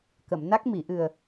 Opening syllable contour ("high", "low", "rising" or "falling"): low